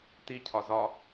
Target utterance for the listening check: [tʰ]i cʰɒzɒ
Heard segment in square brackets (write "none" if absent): t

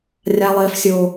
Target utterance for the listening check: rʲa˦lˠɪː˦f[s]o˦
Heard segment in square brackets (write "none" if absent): sʲ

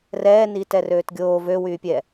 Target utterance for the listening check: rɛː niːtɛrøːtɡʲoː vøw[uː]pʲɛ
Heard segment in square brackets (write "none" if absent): yː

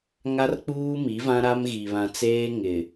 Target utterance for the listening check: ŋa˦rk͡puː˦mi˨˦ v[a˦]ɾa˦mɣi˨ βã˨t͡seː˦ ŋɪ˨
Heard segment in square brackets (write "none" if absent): ã˦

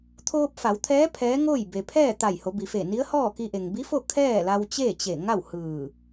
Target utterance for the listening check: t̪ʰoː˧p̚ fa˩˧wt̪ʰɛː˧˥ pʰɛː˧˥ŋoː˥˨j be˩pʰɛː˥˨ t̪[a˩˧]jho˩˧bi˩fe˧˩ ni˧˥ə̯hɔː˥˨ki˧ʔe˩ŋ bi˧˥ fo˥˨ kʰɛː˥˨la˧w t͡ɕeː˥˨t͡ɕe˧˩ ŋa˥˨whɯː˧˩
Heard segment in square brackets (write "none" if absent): a˧˩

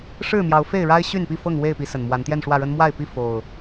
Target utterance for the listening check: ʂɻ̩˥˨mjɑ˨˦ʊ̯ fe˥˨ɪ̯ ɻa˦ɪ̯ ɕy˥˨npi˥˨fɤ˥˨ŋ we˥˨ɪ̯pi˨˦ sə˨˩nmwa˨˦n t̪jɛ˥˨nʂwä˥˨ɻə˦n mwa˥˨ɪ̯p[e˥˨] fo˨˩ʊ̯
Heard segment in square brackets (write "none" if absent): i˥˨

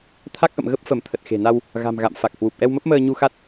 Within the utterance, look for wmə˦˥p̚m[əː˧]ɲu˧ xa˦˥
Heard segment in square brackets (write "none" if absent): əː˧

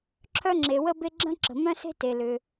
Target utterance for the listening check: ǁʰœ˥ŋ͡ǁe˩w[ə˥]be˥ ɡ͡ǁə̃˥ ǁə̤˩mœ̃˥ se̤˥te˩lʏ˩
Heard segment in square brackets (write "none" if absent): ə˥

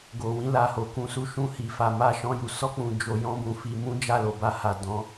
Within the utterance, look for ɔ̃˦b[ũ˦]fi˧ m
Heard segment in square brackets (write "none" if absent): ũ˧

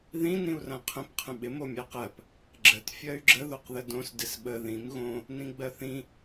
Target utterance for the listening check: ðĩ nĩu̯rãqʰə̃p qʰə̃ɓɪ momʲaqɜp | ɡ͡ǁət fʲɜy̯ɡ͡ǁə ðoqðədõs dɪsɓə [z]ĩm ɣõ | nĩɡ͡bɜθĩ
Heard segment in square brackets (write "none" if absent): ð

